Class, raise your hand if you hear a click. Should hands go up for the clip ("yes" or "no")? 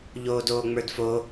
no